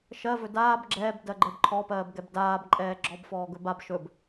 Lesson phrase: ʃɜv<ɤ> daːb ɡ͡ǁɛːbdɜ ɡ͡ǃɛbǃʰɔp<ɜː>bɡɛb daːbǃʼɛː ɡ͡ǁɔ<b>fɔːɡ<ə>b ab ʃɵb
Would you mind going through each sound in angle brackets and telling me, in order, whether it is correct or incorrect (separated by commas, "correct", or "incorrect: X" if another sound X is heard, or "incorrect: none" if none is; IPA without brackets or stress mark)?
incorrect: ɵ, correct, correct, incorrect: ɵ